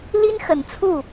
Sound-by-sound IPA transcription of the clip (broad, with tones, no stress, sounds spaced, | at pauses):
l i˥ n x ə˨˩ n t͡sʰ u˥˩